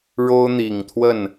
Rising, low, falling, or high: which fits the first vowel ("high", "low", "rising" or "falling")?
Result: high